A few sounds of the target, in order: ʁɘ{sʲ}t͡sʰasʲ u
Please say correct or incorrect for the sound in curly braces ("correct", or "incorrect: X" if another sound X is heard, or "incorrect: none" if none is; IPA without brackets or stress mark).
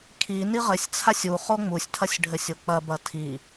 correct